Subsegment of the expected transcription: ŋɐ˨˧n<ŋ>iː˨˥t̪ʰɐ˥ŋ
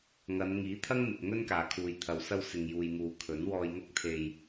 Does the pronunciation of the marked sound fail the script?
no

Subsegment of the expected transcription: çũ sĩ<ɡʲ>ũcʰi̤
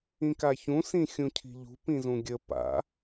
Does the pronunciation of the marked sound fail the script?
yes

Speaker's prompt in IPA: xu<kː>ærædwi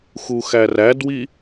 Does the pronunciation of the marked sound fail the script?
yes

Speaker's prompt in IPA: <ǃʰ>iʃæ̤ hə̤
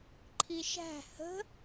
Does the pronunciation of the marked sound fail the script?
no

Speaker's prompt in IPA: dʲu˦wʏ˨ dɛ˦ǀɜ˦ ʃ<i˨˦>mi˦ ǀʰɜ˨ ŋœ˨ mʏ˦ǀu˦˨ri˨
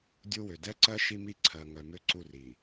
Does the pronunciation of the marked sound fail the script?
yes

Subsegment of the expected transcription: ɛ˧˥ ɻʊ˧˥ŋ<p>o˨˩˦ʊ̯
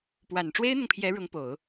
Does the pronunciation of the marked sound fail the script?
no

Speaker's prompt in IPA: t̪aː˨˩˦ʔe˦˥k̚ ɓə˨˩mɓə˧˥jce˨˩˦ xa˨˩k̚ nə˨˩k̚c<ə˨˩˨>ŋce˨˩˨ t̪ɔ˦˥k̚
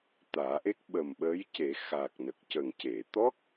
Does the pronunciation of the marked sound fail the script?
yes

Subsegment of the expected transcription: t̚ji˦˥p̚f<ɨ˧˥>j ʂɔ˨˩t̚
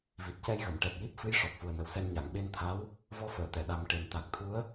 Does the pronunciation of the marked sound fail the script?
no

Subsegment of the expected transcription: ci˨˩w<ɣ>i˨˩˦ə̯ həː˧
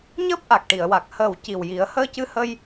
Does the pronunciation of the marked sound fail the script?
yes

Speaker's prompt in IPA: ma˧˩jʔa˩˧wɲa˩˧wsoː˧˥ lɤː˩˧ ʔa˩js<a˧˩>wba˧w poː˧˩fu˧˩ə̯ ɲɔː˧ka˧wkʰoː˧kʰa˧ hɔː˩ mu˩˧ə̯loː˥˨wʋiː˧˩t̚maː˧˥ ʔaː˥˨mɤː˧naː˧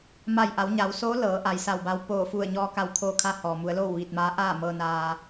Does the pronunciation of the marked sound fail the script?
no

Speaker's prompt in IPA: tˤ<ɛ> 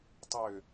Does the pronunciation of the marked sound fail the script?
yes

